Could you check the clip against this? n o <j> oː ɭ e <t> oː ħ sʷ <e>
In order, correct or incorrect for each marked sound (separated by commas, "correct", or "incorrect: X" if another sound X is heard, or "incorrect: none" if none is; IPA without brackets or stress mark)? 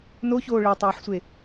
incorrect: ç, incorrect: tˤ, correct